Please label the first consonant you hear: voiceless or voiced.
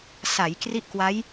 voiceless